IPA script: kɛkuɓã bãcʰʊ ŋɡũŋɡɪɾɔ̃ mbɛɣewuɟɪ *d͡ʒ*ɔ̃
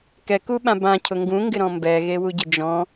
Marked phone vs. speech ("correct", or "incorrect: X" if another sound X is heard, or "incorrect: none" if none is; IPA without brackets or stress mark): correct